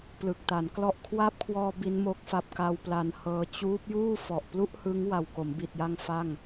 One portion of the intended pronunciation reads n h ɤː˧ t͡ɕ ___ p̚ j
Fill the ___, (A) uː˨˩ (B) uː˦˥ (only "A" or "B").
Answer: B